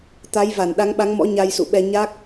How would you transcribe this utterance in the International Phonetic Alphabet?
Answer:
t̪ a˨˦ j v a˧˩ n ɗ a˨˦ ŋ ɓ a˨˦ ŋ m ɔ̰˧˥ ɲ a˧ j s ṵ˧˨ ɓ ɛ˧ ɲ a˦˥ k̚

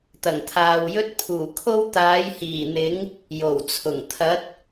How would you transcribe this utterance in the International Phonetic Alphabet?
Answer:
t̪ ɐ˨˩ ŋ t̪ʰ aː˨ w j ɵ˥ t̚ pʰ uː˨˩ kʰ o˥ w t̪ aː˨˥ j h iː˨˩ n̪ ɪ˨˥ ŋ | j o˨˩ w t͡sʰ ʊ˨˩ ŋ t̪ʰ ɐ˨˥ t̚

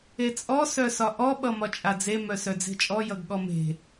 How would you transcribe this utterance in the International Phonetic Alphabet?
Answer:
e t͡sʼ ɔ s œ s ɒ ʔ ɔ ɓ ʌ m ɒ t͡ʃʼ a d͡z e m œ s œ d͡z e̤ t͡ʃʼ ɔ j ʌ ɡ ɠ ɔ m e̤

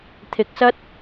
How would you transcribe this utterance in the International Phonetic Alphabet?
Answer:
t̪ʰ ɪ˧ k̚ s ɐ˥ t̚

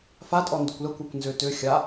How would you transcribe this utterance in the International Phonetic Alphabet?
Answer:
f a tʼ ɔ n d ʏ kʷ l ə kʷ a kʷ n z ʏ t ʏ xʲ a

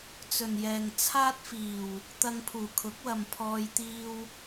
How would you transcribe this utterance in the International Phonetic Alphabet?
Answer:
t͡s ɵ˨ n j ɛː˨ ŋ t͡sʰ aː˥ t̚ f iː˨˩ w | t̪ ɐ˧ ŋ pʰ uː˨˩ kʰ ʊ˨˥ k̚ w ɐ˨ m pʰ ɔː˧ j t̪ iː˧ w

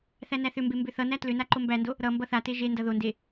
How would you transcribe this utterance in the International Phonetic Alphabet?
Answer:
θ æ n æ θ ʏ m b e m b ʏ θ ʌ n æ t l ʏ n a ǃ o m b æ n d o | ɾ ʌ m b ʌ θ a t e ʒ e n d ʌ ð o n d e

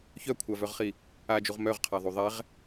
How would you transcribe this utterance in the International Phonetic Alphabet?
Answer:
ç œ kʷʰ a v œ ʁ χ i | a d͡ʒ u ʁ m œ ʁ qʰ a ðˤ u ðˤ ɛ ʁ

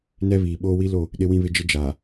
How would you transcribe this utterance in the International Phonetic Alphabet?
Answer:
n ɛ˦ β iː˨ ɓ oː˦ w i˦ l o˦˨ | ɗ ɪ˦ w ĩ˦ β ɪ˦ d͡ʒ ɪ˦ d͡ʒ aː˨

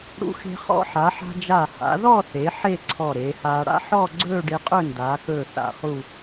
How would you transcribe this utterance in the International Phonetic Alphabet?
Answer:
ɽ ṵ˧ x e̤˧ χ ɔ̰˧ ħ a˩˧ ħ a̤˧ d͡ʒ a˧˩ h a̰˩˧ ð ɔ˥˧ θ e˩˧ ħ e˥˧ ǀʰ ɔ˧˩ ɾ eː˩˧ h aː˧ ɽ a̰˥ ħ ɔ˥˧ ɡ͡ǀ ɵː˥˧ ɖ e˧ qʼ ɵ˥˧ n d aː˩˧ k ɵː˧˩ θ a̰˧˩ χ u˥˧

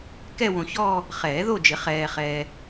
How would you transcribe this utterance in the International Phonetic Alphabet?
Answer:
k ɛ˥˧ w õ˨ ç ɔː˥˧ | χ ɛː˨˩˦ ð o˥˧ d͡ʒ ɪ˨˩˦ χ ɛː˨ χ ɛː˨

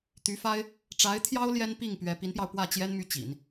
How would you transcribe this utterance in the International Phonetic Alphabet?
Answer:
t̪ y˧˥ f a˥ ɪ̯ | ʈ͡ʂ a˧˥ ɪ̯ t̪ʰ j ɑ˥ ʊ̯ l j ɛ˥ n p i˥˩ ŋ p ɥ ɛ˧˥ p i˧˥ n p j ɑ˧ ʊ̯ p w ä˥˩ t͡ɕ j ɛ˥ n m y˥˩ t͡ɕ ḭ˨˩˦ n

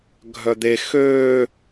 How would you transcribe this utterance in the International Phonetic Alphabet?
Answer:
ɡʱ œ d̪ e x øː

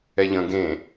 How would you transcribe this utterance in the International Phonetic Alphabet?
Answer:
ɛ ʎ ə̃ ɡ ẽ

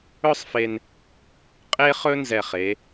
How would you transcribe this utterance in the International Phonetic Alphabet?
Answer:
ɵ˥ sˤ f e˧ n | qʼ e˥ χ ɵ˥ n z ɛ˧˩ χ e˩˧

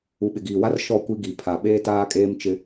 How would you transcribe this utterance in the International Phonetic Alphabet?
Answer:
u˨ ɓ ɪ˨ ɡ iː˨ w a˦ r ʃ ɔ˦˨ kʷ i˦ ɡ i˨ pʰ a˨ ɓ eː˦ t aː˦ kʼ eː˦ m t͡ʃ ɪ˦

